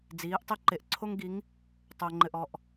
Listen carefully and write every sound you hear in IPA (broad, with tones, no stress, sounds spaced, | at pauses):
d͡z iː˨˦ ʔ tˤ e˦ ǃ e˨ ʔ ǀʰ o˦ ŋ ɡ i˨˦ ŋ | tˤ o˨ ŋ͡ǃ ɘ˨ ʔ ɔ˨ ʔ